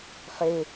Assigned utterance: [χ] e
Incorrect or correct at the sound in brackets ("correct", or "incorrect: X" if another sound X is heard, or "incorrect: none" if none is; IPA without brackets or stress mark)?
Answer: correct